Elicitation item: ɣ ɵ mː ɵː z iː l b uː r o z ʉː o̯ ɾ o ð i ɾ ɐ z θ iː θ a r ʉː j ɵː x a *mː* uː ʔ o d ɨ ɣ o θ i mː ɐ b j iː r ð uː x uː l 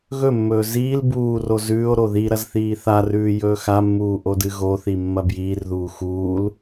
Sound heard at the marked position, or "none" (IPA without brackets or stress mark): mː